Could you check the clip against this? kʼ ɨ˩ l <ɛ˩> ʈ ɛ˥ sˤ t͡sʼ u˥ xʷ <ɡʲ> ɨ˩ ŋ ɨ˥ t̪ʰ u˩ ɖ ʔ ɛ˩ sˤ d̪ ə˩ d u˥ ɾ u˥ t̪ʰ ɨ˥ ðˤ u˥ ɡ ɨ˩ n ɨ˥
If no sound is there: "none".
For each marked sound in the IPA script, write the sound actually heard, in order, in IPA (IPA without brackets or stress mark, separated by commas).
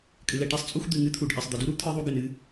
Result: ɛ˩, d̪